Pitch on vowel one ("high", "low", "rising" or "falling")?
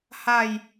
falling